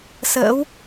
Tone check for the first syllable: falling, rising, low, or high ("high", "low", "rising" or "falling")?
rising